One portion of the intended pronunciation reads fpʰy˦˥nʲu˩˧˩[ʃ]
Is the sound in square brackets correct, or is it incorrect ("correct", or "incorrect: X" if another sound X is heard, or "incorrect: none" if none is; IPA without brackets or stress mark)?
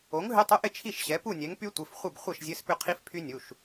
correct